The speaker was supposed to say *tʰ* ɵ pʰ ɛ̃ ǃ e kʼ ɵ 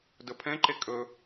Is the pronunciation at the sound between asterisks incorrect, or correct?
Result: incorrect